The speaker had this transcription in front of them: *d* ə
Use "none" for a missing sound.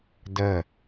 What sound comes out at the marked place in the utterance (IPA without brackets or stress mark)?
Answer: d